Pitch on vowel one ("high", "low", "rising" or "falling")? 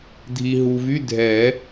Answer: low